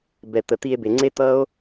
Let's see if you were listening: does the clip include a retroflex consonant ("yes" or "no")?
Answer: no